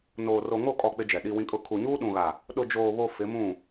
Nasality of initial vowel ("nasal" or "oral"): oral